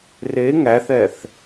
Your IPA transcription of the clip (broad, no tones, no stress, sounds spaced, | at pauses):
r e ŋ æ θ ɛ θ